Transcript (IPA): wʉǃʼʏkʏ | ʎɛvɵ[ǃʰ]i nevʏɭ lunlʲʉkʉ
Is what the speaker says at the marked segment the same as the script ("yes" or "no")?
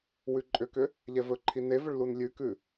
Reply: yes